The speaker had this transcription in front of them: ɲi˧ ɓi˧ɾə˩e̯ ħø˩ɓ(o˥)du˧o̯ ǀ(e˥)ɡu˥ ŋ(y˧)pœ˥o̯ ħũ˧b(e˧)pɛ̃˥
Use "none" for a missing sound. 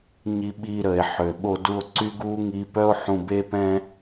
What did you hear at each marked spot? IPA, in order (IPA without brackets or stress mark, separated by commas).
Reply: o˧, y˥, i˧, e˥